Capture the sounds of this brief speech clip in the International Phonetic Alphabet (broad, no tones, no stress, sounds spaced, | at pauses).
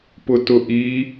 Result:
p ʊ t ʊ ʔ i